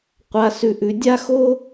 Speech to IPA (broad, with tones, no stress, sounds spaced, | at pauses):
qʷ a˧ s ʉ˧ ʔ ʉ˧ dʲ a˦ x o˦